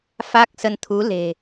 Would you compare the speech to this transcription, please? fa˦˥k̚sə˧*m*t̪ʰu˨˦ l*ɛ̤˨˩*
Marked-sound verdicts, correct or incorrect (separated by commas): incorrect, incorrect